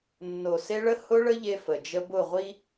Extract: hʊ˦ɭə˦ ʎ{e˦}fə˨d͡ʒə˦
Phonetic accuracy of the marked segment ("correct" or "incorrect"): correct